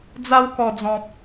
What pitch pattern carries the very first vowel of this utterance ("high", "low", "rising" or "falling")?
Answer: high